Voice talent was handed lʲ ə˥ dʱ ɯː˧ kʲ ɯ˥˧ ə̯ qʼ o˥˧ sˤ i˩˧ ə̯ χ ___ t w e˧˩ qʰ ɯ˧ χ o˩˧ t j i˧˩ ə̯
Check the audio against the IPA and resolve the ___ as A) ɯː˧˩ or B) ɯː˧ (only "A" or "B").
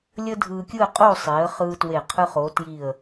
B